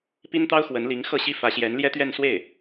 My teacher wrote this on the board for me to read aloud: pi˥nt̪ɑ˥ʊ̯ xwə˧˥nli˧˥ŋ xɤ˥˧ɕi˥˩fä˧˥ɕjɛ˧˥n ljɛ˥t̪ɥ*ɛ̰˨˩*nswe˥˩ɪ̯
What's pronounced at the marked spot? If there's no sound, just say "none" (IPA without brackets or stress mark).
ɛ˥˧